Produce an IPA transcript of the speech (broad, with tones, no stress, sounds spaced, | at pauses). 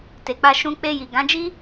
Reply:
t e˨ k͡p a˧ ʃ ũ˧ k͡p e˧ j i˨ ɡ ã˨˦ d͡ʒ i˦